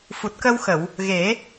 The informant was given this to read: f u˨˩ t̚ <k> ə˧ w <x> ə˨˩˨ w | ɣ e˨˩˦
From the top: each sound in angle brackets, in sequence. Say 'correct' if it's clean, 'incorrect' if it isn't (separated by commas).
correct, correct